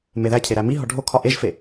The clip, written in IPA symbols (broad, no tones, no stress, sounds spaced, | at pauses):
m e ð æ cʰ e ɾ æ m i ɦ ɒ ɖʱ o kʰ ɒ ʔ e ʒ f e